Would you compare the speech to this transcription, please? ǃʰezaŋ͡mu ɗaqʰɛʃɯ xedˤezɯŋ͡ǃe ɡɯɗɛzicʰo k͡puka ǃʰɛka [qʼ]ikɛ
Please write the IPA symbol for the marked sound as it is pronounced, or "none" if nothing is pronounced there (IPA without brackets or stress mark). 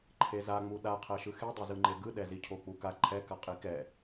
qʼ